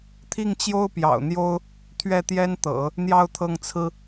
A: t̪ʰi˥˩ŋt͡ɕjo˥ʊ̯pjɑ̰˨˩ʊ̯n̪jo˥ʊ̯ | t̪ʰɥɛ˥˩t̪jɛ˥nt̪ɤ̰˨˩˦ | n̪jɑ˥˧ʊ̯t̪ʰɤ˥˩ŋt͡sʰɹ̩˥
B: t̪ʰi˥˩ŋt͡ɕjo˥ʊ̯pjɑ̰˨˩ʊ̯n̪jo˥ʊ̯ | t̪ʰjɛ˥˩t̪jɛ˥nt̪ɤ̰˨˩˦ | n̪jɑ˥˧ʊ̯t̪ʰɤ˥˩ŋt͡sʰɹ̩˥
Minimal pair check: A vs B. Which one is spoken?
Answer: A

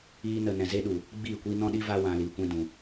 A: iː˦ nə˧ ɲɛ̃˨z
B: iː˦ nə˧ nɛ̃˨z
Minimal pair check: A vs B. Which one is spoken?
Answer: B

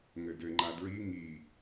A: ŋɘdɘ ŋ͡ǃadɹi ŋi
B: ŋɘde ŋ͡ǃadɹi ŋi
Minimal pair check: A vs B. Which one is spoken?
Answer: A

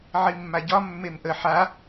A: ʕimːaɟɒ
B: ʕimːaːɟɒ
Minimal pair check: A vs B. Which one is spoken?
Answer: A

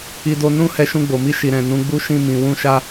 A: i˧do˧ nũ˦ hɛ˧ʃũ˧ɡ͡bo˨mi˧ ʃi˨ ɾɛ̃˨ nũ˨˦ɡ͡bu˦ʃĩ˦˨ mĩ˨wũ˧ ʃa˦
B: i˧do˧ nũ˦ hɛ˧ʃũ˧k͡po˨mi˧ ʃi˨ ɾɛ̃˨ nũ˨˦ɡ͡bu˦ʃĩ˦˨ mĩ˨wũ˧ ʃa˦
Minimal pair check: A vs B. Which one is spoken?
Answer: A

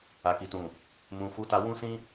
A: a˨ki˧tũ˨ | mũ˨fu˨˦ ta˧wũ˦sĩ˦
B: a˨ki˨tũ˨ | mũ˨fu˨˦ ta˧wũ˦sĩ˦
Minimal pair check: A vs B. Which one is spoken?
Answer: B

